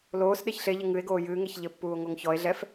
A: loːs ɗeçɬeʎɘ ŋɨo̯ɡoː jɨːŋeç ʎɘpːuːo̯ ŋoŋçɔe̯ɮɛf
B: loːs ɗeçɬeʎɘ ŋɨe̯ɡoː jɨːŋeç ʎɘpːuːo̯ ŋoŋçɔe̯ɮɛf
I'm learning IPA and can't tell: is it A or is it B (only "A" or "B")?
B